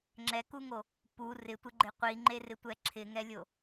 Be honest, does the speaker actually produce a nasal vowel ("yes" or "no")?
no